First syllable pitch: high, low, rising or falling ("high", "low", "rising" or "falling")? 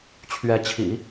rising